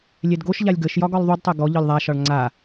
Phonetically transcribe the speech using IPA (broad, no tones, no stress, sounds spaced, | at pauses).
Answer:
lʲ ɛ d ɡ o ʃ ʎ a lʲ ɡ ə ʃ j ɒ ɡ ɒ lˠ ðˤ u d tˤ ɛ ɡ ɔ ʎ ɒ lʲ ðˤ a ʃ ɒ ɭ ŋ͡ǀ a